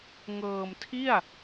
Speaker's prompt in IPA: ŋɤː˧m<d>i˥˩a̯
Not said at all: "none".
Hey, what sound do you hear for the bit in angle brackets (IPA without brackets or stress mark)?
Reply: tʰ